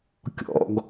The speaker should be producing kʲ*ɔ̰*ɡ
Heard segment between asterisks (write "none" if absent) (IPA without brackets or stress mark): ɔ̰